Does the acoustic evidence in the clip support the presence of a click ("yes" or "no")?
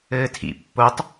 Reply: no